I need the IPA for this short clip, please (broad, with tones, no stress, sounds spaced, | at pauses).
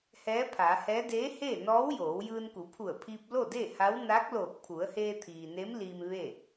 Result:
h ɛː˧˥ pʰ aː˩˧ h ɛː˧˥ d eː˧˥ h eː˥˨ n ɔː˧˥ w j oː˩˧ w j ɯː˧ n k u˩˧ pʰ u˧˩ ə̯ pʰ iː˧ p̚ l o˥˨ d e˥˨ h a˧˥ w n aː˧˥ k̚ l oː˧˩ k̚ pʰ u˩˧ ə̯ h eː˧ t̪ʰ iː˩ n e˧˥ m l i˧ m ʋ eː˥˨